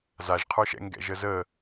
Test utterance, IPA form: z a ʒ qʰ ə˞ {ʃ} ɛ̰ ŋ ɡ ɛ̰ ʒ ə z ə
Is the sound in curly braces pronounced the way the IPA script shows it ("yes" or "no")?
yes